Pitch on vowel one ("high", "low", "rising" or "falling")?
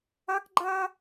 high